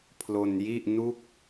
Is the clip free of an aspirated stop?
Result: no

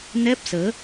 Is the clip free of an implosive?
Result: yes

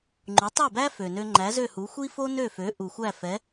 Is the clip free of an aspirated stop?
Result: yes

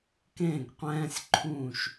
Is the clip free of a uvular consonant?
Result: no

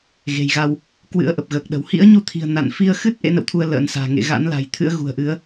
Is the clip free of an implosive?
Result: no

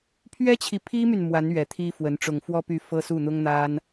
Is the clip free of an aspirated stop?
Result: no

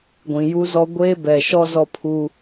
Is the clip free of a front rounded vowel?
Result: yes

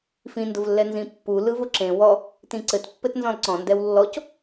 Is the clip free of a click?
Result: no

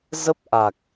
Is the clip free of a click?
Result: yes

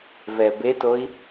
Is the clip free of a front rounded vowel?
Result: yes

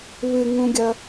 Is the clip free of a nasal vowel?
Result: no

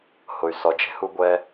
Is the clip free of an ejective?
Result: yes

